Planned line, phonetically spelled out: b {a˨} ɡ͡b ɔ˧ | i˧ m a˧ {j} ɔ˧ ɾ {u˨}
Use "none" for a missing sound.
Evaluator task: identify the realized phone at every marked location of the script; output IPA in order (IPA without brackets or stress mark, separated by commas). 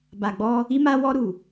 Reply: a˨, w, u˨